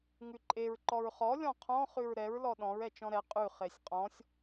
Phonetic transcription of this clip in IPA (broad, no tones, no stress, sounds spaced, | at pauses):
ŋ ʉ ǃʼ e ɹ ǃ ɔ ɹ χ ɔ lʲ ɔ̃ qʰ ɔ̃ χ ʉ ɹ ɾ ɛ ɹ l ɔ ɗ ɔ̃ ɹ ɛ t͡ʃ ɔ̃ ɾ ɛ qʼ ʉ χ e sʲ qʼ ɔ̃ sʲ